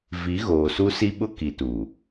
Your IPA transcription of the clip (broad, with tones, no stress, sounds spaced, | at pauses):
v i˨˦ ɣ oː˨ s u˦ s i˦ ɓ ʊ˦ k i˨ t u˨